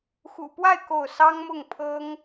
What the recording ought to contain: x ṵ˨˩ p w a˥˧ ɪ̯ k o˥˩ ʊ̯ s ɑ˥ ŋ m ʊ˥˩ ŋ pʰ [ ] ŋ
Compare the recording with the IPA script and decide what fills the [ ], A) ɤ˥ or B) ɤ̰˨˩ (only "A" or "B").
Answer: A